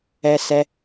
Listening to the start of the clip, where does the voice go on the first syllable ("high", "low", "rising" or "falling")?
low